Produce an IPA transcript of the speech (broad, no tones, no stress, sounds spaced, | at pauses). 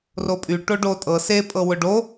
r o pʼ y ʈ o ɖ o tʼ ɤ s e pʼ ɤ w ʊ ɖ o